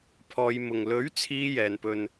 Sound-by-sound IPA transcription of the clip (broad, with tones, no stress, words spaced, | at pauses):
pʰɔː˨˧jmʊ˨ŋ lɵ˨˥ɥ t͡sʰiː˥ jɛː˨˧npɵ˧n